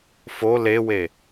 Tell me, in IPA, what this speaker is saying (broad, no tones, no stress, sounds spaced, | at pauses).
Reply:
f o l e w e